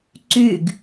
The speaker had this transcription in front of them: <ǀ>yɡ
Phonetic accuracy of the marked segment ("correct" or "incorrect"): correct